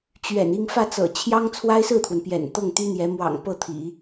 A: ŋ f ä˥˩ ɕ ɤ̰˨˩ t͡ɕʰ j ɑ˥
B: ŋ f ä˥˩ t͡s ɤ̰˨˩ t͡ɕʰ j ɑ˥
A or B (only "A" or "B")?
B